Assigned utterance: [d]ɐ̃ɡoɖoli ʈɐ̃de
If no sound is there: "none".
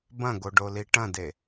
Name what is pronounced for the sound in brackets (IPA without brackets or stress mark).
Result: b